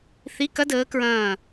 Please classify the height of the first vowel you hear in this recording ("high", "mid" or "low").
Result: high